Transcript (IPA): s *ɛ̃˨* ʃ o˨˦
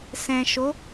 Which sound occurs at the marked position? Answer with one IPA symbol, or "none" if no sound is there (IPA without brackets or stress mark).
ɛ̃˨